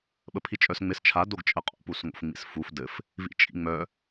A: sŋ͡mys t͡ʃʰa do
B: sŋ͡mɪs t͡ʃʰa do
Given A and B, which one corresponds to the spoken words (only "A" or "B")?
B